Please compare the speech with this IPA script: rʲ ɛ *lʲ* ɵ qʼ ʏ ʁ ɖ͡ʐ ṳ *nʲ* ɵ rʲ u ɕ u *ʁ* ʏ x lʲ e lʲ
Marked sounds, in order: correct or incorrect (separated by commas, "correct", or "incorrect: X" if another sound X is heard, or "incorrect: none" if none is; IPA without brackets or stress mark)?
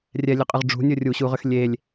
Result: correct, correct, correct